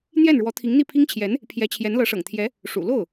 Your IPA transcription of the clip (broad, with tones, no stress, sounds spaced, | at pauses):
n̪ j ɛ˥˩ n ɻ w ɔ˧˥ t̪ʰ i˧˥ ŋ n̪ i˥˩ pʰ i˥ ŋ t͡ɕʰ j ɛ˧˥ n | pʰ j ɛ˧˥ t͡ɕʰ j ɛ˧˥ n l ɤ˧˥ ʂ ɤ̰˨˩ ŋ t̪ʰ j ɛ˧˥ | ʂ ṵ˨˩ l o˥˩ ʊ̯